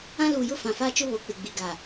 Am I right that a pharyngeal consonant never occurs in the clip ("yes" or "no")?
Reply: yes